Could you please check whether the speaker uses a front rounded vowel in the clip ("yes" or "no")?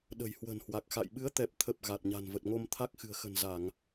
no